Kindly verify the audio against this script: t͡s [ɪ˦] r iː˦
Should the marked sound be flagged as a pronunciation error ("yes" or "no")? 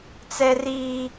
yes